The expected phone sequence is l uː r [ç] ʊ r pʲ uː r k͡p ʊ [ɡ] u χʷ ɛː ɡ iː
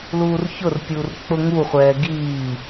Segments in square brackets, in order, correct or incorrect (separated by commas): correct, incorrect